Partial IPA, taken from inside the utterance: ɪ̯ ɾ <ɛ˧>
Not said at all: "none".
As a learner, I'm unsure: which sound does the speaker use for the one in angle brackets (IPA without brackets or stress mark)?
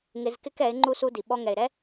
ɛ˦